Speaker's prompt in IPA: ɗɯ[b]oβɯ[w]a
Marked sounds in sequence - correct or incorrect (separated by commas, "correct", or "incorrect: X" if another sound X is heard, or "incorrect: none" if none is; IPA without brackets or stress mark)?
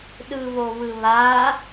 incorrect: β, incorrect: β